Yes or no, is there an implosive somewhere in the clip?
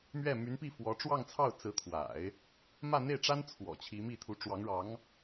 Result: no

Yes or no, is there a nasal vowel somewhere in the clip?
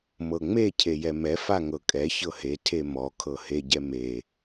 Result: no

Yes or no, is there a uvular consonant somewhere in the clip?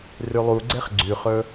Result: yes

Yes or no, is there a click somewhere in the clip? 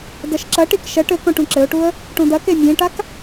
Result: yes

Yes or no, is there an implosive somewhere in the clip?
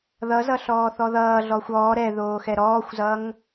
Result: no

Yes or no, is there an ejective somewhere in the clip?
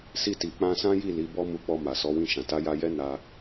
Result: no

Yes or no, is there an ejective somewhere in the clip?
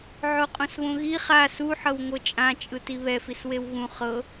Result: yes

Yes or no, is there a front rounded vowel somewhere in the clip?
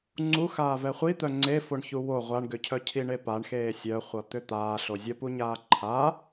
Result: yes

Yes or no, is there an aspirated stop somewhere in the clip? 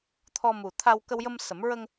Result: yes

